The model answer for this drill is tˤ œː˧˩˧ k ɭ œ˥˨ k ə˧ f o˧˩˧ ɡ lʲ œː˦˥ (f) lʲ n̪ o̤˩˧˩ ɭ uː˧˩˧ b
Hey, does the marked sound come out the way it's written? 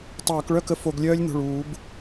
no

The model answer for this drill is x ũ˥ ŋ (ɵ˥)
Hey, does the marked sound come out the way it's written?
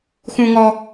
no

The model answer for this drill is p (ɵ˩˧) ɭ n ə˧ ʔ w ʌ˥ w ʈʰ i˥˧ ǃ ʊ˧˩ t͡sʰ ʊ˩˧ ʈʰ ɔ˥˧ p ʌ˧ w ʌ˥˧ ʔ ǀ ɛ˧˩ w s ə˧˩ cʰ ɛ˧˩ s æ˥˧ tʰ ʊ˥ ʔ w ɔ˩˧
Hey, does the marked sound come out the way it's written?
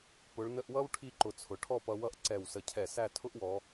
no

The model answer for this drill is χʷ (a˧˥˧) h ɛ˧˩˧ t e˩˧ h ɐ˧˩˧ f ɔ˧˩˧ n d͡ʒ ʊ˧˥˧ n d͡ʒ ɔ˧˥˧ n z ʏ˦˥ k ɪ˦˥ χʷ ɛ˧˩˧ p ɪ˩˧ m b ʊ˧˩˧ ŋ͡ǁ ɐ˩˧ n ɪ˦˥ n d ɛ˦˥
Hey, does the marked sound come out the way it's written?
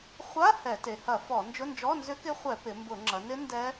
yes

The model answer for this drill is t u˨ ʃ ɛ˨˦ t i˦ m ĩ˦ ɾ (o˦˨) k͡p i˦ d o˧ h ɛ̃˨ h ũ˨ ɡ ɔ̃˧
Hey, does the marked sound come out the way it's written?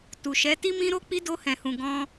no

